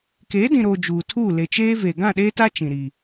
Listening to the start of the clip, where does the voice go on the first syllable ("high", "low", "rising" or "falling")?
rising